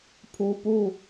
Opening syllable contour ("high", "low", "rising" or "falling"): low